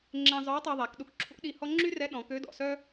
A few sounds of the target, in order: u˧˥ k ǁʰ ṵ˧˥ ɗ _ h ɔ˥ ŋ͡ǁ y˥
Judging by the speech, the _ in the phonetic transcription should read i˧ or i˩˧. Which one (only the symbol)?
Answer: i˧